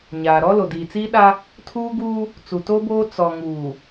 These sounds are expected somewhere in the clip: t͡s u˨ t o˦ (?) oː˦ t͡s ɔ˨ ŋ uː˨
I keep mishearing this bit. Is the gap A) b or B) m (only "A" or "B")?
A